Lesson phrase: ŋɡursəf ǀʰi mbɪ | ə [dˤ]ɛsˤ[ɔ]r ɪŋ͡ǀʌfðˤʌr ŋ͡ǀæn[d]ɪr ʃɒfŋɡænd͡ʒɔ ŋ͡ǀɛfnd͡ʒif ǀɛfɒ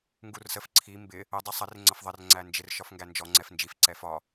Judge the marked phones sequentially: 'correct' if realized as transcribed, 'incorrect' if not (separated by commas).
correct, incorrect, incorrect